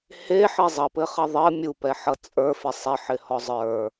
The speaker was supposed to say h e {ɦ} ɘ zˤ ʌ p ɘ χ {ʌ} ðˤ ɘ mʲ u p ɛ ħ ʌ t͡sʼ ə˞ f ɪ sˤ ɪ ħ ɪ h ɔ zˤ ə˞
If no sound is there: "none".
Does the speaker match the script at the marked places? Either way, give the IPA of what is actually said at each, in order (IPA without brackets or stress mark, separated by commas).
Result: ħ, ʌ